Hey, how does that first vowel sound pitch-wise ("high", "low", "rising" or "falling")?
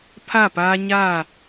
falling